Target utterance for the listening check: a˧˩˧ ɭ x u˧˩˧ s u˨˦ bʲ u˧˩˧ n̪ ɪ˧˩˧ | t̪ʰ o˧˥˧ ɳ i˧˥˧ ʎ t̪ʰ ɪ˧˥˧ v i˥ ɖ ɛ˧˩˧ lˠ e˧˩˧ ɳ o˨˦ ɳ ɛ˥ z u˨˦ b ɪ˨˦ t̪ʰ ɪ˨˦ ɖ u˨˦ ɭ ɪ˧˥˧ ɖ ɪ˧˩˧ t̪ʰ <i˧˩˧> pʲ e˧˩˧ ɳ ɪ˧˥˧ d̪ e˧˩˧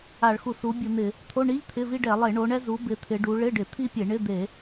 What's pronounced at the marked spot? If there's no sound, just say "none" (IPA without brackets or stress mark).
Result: i˥